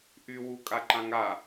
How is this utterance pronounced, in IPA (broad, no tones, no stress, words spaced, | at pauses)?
ʔy wukʼaǃãŋa